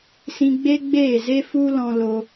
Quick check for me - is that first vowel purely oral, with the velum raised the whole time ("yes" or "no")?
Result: no